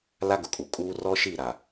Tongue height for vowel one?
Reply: low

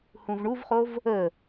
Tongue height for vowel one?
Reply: high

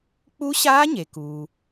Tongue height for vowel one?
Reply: high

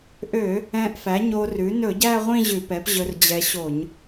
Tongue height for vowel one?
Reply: mid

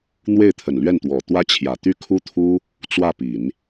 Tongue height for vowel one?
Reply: mid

